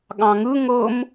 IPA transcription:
ɠɑ̃ŋɯ ŋɤm

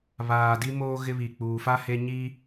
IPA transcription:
βaː˨di˦moː˦ ɣɪ˦βi˨k͡puː˨ fa˦ he˦ɲiː˦

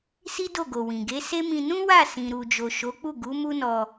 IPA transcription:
si˦do˦˨ɡo˨ wĩ˨ɡe˨˦se˦mĩ˧ nũ˦wa˦˨ sĩ˨ɾu˨d͡ʒo˨ ʃo˨˦k͡pu˦˨ɡu˨˦ mu˦nɔ˧

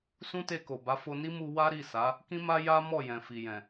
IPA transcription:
sũ˦te˧ko˨ba˨˦ fo˧ni˦mu˧ wa˦ɾi˦˨sa˨˦ | kĩ˦ma˦ ja˦ mɔ˦˨jɛ̃˨fi˨jɛ̃˨

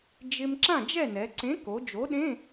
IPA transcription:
d͡ʒɪ˧m ǁã˥˨d͡ʒɛ˥˨nɛ˩˧ ǀẽ˨˥ko˩˧ d͡ʒo˨˥ɗẽ˧˥˧

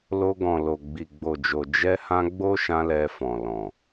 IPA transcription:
lo˧ ɡɔ̃˨ lo˨ɡ͡bi˨ɡ͡bo˨d͡ʒo˨ d͡ʒɛ˧hã˧ ɡ͡bo˦ʃã˧ lɛ˧fɔ̃˨lɔ̃˨

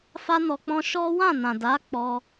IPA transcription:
fa˦nɔ˧k͡pɔ̃˦ ʃɔ˦ wã˦˨nã˨da˨˦ k͡pɔ˧

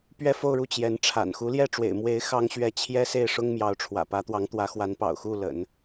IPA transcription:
pɥɛ˥˧fo˥˧ʊ̯ɻu˥˩ t͡ɕjɛ˧˥n ʈ͡ʂʰa̰˨˩n xu˧˥ljɛ˥˩ʈ͡ʂwḛ˨˩ɪ̯ mwe˧˥ɪ̯ xɑ˥ŋɕɥɛ˥˩ t͡ɕʰjɛ˥se˥˩ɪ̯ ʂʊ˥ŋmjɑ˧˥ʊ̯ ʈ͡ʂʰwä̰˨˩pä˧˥ t̪wɑ˧˥ŋt̪wä˧˥xwa˧˥npɑ̰˨˩ʊ̯ xu˥˩lə̰˨˩˦n

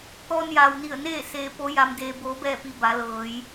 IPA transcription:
t̪ɔː˧njaː˩wni˧˩ə̯neː˥˨ seː˧po˧˥ja˧m deː˧boː˧˥bɛː˥˨pi˧ ba˩˧lɤː˩˧j

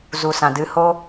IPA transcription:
zu˨sã˨dɨ˧ho˦

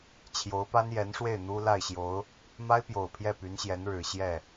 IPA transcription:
t͡ɕʰjo˧˥ʊ̯pa˥njɛ˧˥nʂwe˥˩ɪ̯ n̪u˥ la˥˩ɪ̯ɕjo˧˥ʊ̯ | ma˥ɪ̯pjo˨˩ʊ̯ pʰjɛ˥˩py˧˥nɕjɛ˧˥n ɻɻ̩˨˩ ɕjɛ˥˩

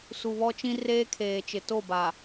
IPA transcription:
su˨βɔ˦t͡ʃĩ˦ reː˦kʰeː˨t͡ʃɪ˨ to˦˨ba˨

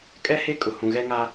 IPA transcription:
kʼɛ˦ he˦kʼʊ˨ hũ˨ ɣɛ˦ŋa˦

